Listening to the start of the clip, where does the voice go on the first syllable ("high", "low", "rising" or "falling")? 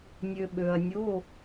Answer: low